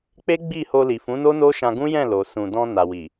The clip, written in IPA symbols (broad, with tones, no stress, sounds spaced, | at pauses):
k͡p e˦ ɡ͡b i˦˨ h o˧ l i˨ f ũ˨˦ n o˦ n o˦ ʃ ã˧ ɡ ũ˦ j ɛ̃˦˨ l o˨ s ũ˨ d ɔ̃˧ n a˨ w i˨